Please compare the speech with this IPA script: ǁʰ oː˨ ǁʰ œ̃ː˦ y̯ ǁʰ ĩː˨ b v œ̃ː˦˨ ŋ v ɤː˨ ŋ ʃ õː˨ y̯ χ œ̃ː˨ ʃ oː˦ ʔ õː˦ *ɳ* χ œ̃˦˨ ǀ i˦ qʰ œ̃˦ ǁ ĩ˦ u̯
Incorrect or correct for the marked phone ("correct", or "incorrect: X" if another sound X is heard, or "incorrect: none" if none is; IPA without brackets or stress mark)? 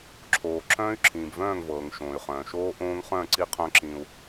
incorrect: ŋ